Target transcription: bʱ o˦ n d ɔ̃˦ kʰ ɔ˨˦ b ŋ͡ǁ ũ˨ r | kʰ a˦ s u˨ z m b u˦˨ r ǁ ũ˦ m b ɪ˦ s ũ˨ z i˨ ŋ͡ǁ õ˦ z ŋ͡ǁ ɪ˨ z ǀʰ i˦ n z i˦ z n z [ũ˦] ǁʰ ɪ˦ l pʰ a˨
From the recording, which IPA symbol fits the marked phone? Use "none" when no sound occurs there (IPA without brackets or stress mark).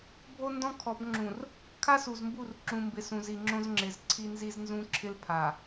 ũ˦